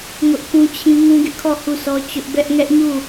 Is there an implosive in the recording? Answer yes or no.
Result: no